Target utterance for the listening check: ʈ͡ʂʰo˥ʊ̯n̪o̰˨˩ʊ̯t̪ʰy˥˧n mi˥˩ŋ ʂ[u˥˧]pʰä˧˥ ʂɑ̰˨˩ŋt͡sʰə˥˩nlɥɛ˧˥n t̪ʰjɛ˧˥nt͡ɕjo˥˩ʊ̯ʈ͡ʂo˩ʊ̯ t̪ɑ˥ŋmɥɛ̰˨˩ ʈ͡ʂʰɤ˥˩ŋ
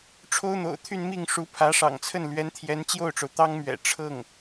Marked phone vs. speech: incorrect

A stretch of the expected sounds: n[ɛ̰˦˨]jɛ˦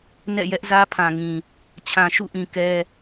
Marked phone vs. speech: correct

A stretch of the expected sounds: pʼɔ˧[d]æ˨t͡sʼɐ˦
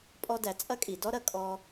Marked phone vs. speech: correct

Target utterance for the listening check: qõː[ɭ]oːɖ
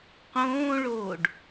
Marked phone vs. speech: correct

